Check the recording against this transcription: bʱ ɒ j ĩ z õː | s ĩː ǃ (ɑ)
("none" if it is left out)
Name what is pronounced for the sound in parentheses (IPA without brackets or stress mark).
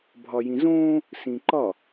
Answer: ɒ